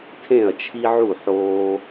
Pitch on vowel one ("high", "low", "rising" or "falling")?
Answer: falling